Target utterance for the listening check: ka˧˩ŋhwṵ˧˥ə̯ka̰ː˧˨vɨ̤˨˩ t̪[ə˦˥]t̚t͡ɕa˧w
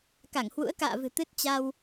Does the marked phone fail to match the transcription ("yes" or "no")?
yes